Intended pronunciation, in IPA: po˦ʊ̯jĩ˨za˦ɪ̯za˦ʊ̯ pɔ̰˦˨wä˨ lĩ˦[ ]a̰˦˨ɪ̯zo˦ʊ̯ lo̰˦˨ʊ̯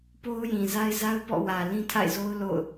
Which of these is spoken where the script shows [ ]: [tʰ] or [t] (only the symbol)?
tʰ